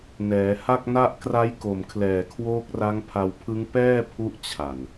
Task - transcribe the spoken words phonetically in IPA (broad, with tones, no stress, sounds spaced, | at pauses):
n ɛː˩˦ h a˥˩ k̚ n a˥˩ ʔ k r a˦˥ j k o˨˩ m kʰ l ɛː˨˩ kʰ w oː˦˥ k̚ r a˦˥ ŋ pʰ a˧ w pʰ ɯ˦˥ ŋ p ɛː˥˩ pʰ u˦˥ ʔ t͡ɕʰ a˨˩ n